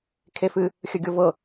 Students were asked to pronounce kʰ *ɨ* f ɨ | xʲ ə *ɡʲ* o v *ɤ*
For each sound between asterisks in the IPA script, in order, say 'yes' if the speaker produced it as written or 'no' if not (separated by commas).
no, yes, yes